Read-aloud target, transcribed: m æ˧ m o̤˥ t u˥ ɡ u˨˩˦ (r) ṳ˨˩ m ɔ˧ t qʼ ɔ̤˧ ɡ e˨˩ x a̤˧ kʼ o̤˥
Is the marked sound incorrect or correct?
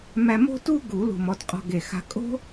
incorrect: l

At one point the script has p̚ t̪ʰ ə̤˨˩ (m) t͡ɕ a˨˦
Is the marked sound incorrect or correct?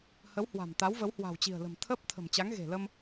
correct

